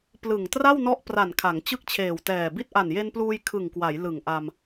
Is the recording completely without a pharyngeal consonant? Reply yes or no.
yes